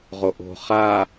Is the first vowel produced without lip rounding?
no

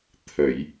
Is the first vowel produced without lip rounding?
yes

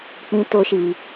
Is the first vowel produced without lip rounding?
yes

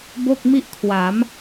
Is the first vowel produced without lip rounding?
no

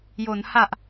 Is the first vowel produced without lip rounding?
no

